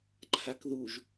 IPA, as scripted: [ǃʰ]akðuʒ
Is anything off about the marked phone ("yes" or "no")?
no